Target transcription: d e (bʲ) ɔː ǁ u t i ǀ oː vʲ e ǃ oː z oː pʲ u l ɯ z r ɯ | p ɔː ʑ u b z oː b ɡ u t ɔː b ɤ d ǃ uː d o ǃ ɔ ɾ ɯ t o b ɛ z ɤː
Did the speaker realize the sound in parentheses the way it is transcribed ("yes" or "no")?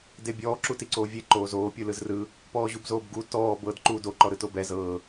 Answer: yes